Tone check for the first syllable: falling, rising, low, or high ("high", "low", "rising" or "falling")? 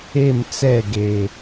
falling